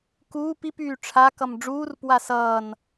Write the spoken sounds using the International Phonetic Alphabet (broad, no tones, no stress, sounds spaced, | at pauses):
k uː p i p yː ʈ͡ʂʰ a k ʌ m ɖ͡ʐ uː r p w a s ʌː n